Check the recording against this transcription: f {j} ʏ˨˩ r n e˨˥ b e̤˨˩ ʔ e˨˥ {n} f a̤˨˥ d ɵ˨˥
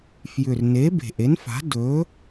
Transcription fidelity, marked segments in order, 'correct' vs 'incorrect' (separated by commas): correct, correct